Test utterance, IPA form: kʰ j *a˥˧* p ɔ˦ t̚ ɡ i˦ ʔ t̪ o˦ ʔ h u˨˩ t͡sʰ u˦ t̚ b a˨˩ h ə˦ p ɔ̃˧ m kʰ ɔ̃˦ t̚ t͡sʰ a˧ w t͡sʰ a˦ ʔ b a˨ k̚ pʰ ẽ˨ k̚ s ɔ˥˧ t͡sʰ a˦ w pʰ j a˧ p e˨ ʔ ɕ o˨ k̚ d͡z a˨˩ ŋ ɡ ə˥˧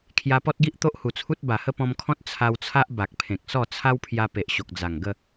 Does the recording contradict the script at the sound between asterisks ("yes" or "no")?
yes